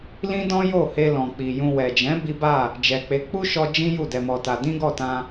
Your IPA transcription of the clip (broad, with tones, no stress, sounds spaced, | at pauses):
l ĩ˦ d ɔ̃˦ j o˦˨ h e˧ l ɔ̃˨ k͡p i˨ j ũ˧ w ɛ˨ d͡ʒ ɛ̃˨˦ b i˦ b a˦˨ | d͡ʒ ɛ˨ k͡p e˨˦ k͡p u˦ ʃ ɔ˧ d͡ʒ ĩ˦ j u˦˨ d ɛ˧ m ɔ˧ t a˧ d ĩ˦ ɡ ɔ˦˨ t ã˧